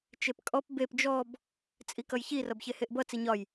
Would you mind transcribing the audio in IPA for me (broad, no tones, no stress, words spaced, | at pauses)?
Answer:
t͡ʃepkʼɔp bep d͡ʒɔb | t͡sʼikʌjçi rʌbçeheʔbʌ t͡siɲɒj